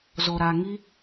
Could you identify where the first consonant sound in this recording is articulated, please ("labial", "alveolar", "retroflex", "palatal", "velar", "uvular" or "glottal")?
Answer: alveolar